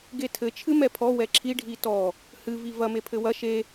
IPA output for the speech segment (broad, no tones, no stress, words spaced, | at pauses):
ɡetʰɘ t͡ʃʰɨmɛpʰɔ wɛǁʰi ɖʱitɔ | hɨ vivɐ mepʰɘwɐ ʃe